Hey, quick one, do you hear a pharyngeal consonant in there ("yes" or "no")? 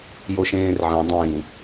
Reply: yes